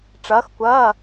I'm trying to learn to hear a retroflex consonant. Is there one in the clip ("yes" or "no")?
yes